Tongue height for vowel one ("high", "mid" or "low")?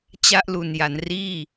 low